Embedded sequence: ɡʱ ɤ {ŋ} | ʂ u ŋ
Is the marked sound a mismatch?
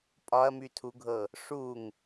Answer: yes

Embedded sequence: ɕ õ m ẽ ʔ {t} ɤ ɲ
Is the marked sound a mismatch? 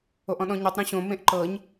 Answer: yes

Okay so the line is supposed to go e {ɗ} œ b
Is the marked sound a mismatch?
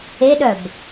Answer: no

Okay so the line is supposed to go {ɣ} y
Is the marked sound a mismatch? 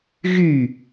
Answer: no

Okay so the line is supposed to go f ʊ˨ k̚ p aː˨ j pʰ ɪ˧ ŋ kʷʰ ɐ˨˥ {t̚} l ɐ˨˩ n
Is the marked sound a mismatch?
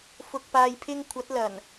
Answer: no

